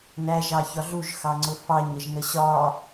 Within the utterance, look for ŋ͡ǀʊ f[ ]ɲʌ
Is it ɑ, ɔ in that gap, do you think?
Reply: ɑ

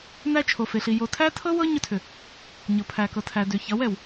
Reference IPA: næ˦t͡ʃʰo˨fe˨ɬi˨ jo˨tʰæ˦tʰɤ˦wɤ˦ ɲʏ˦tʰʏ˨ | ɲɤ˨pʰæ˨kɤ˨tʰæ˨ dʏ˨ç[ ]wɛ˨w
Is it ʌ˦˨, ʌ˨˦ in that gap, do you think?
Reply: ʌ˨˦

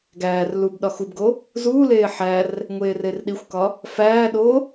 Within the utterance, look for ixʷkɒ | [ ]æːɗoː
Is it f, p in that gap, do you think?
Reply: f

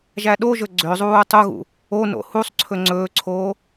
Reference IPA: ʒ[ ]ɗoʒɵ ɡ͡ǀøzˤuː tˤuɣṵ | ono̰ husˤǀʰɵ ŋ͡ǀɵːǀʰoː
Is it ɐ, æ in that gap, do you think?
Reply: æ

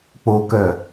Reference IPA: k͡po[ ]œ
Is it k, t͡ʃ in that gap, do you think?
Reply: k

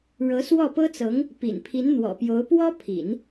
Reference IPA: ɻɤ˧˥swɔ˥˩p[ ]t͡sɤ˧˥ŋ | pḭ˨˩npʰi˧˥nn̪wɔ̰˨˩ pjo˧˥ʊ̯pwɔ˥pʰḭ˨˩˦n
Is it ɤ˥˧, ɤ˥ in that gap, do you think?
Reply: ɤ˥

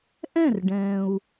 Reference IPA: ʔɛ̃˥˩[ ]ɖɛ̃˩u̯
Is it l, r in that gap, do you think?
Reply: r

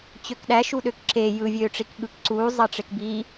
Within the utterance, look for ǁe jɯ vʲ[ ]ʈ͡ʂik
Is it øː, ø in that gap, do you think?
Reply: øː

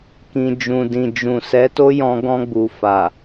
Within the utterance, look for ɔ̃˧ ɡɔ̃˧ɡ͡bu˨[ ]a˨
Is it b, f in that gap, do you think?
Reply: f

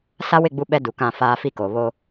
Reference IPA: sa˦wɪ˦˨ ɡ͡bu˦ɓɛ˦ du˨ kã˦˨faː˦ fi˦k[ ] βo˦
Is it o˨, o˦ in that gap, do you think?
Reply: o˨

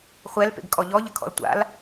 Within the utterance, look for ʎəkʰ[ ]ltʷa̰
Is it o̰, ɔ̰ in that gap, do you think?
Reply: ɔ̰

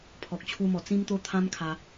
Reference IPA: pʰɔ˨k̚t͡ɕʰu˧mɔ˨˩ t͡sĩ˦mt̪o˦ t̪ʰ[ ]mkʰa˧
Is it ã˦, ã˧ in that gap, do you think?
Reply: ã˦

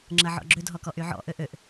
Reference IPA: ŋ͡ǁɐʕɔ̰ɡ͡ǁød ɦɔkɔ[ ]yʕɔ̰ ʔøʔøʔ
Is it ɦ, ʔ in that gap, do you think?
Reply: ʔ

